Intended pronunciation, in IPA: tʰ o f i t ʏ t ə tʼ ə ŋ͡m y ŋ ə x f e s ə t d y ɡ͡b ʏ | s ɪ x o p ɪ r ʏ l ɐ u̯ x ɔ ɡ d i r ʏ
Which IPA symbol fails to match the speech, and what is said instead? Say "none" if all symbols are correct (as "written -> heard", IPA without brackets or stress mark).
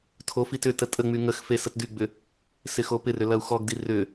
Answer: none